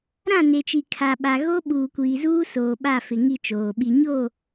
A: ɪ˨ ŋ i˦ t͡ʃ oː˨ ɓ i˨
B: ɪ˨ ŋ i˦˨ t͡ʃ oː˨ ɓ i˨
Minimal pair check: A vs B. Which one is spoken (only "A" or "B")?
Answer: B